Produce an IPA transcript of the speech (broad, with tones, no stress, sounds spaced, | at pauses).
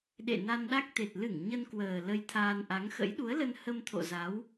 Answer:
ɗ ḛ˧˨ n a˧ n ɗ a˦˥ k̚ t̪ e˨˩ t̚ l ɨ˧˩ ŋ ɲ ə˧ n k w əː˨˩ l ə˧ j t̪ʰ aː˧ n ʔ a˨˦ ŋ x ə̰˧˥ j ɗ u˨˦ ə̯ l ə˧ n h ə˧ m t̪ʰ o̰˧˨ z a˨˦ w